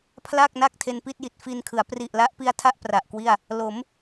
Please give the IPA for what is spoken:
pʰ l a˥˩ k̚ n a˥˩ k̚ tʰ e˧ n p i˥˩ t̚ j i˨˩ t̚ f i˧ n kʰ ɯ˩˦ a̯ p r i˨˩ ʔ l a˦˥ ʔ p i˦˥ a̯ tʰ a˦˥ ʔ p r a˨˩ ʔ k w i˥˩ a̯ | l o˩˦ m

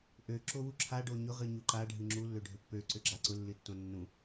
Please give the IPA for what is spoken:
ʔ ø ǁ o w u ǁʰ a ɖ o ɲ ʊ ʁ ɨ ɲ u ǃ a ɖʱ ɨ ŋ͡ǁ u lː ø ɖʱ ɘ pː ø ǀ ø ɡ͡ǁ a ǀ ʊ lː ɨ tː õ nː ũ

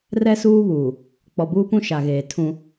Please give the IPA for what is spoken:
r ɛ˦ s uː˦ β uː˨ | k͡p ɔ˨ b uː˦ p ũ˦ ʃ a˨ ɣ eː˨ tʰ ũ˦

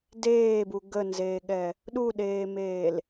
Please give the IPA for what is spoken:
d eː b u ɡ ə n z eː ɠ ɛ | ɗ u ɗ eː m eː l

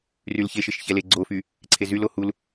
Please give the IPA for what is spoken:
r y l ç e ʃ ɪ ʃ ç ɛ l e ɡ͡ǀ o f y | ǀʰ e z y l o h u l

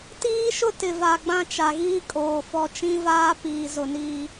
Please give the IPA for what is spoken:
t iː˦ ʃ ʊ˦ t ɪ˨ v a˨ ɡ͡b ã˦ t͡ʃ a˨ ɣ iː˦ kʼ oː˨ f ɔ˦ t͡ʃ ĩ˦ v aː˦ p iː˨ z ʊ˨ n iː˨

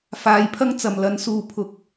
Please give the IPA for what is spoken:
f aː˨˧ j pʰ ɐ˥ ŋ t͡s ɐ˨ m l ɐ˧ n s uː˧ pʰ ʊ˧ k̚

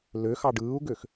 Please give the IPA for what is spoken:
l ø x ɑ ɖ ɯː u̯ ɡ ø x

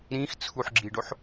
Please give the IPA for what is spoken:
ɾ ĩ x t͡sʰ u ħ ɡ͡ǁ i ɖ o ħ

